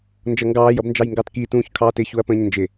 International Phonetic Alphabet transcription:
n d͡ʒ ʌ ŋ ɡ ɑː j ʌ b n d͡ʒ ɑ j ŋ ɡ ɑ t k i t ũː ç kʰ ɑː t ɪ ç u ɐ̯ p ə̃ː ɲ n d͡ʒ ɪ

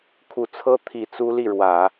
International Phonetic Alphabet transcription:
kʰ u˨˩ t͡sʰ ɤ˥ t̪ʰ i˨˩ t͡s u˥ l i˥˩ ɻ w ä˨˩˦

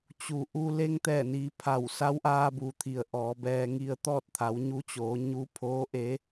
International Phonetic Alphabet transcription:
t͡ɕ u˩ ʔ u˧ l e˧ ŋ t̪ ɛː˧˩ n iː˩˧ pʰ a˧˩ w s a˧˥ w ʔ aː˧ b u˩ t̪ʰ i˩ ə̯ ʔ ɔː˩˧ b ɛː˧ ŋ i˧ ə̯ t̪ ɔː˥˨ t̚ t̪ʰ a˩˧ w ɲ u˧˥ t͡ɕ oː˩˧ ɲ u˧˥ pʰ oː˧˥ ʔ e˧˥

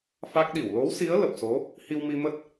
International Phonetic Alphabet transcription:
f a˦˥ k̚ ɗ i˧˩ w l o˨˦ w s i˨˦ ə̯ l ə˨˩ p̚ s o˨˦ | h i˧ w m i˧ m ə˦˥ t̚

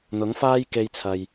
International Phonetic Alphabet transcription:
n̪ ʊ˨˥ ŋ f aː˥ j k e˧ j t͡sʰ ɐ˨ j

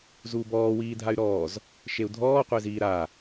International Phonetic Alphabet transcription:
z uː b ɔː w iː dʱ a y̯ ɾ ɔː z | ʃ e u̯ dʱ ɔː qʷ e z iː ɾ a

